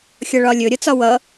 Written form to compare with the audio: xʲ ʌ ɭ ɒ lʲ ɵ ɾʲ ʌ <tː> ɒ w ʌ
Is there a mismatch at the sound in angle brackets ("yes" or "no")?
yes